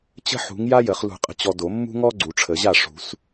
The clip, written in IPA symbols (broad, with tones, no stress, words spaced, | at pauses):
t͡ɕə̤˥ħṳ˨˥ŋ ja˥jə˨˩˦χ lṳ˨˩˦qʼə̤˨t͡ɕɔ˨ do˨˩˦mːṳ˥ŋɔ˥ ɡ͡ǀu˨˩˦ʈ͡ʂʰə˨˩˦ʑa˥˩ ʂṳ˨˩˦s